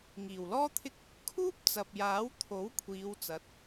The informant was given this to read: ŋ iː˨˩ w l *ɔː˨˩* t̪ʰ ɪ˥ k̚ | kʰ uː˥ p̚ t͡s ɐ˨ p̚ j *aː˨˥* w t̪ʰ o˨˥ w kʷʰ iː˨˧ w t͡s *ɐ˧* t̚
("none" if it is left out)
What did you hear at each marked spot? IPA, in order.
ɔː˥, aː˨˥, ɐ˨˥

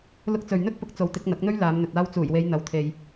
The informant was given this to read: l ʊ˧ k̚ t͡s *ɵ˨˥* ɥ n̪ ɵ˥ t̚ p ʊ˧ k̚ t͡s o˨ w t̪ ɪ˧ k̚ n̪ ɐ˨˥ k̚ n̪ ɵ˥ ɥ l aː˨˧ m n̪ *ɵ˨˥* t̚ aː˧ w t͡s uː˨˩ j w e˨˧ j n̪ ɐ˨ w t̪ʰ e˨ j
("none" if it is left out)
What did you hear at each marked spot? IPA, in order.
ɵ˨, ɵ˨

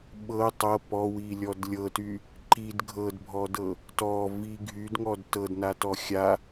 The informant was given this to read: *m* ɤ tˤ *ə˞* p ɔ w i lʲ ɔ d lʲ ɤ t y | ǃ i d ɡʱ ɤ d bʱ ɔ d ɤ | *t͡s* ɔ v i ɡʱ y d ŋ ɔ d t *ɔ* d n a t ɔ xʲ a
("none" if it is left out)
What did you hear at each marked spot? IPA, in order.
ɓ, ɤ, t, ɤ

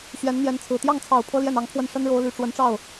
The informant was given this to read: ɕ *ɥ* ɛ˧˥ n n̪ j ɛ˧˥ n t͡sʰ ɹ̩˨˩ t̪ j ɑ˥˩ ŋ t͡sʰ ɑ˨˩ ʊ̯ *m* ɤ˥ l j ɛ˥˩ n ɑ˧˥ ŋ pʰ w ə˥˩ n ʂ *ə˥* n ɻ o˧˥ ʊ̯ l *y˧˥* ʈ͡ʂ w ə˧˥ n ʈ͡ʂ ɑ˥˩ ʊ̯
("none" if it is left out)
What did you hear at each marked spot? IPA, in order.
ɥ, pʰ, ə˥, y˨˩

